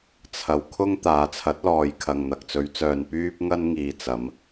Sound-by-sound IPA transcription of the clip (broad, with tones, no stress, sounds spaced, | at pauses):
t͡sʰ ɐ˧ w kʰ ʊ˥ ŋ t̪ aː˨˧ t͡sʰ ɐ˨˥ t̚ l ɔː˨ j kʰ ɐ˨ ŋ n̪ ɐ˨ k̚ t͡s ɵ˨˧ ɥ t͡s œː˨ n p yː˥ p̚ ŋ ɐ˥ n ŋ iː˨ t͡s ɐ˨˧ m